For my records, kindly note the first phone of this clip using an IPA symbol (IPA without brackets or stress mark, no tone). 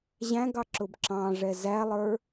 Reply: ʑ